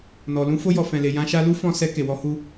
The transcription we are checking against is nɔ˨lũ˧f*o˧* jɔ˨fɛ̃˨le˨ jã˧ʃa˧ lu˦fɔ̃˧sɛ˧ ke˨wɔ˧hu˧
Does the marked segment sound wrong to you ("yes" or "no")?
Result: no